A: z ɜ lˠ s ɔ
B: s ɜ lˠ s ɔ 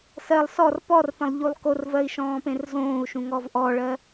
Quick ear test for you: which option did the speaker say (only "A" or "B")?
B